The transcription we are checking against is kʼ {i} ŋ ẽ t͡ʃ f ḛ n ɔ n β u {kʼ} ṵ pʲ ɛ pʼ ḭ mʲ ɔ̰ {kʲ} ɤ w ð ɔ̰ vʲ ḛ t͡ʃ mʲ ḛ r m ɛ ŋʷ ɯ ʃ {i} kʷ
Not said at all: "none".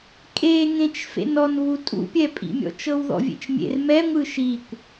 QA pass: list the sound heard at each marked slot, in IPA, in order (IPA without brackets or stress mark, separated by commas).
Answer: e, tʼ, t͡ʃ, i